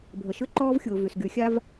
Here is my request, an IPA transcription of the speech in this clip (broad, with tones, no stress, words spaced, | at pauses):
bʱə˨ʃʏ˦ǃɔː˦vxʲʊː˨ vy˨sɡy˨˦xʲa˦v